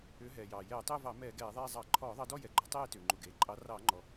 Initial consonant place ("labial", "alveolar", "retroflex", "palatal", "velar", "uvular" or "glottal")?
glottal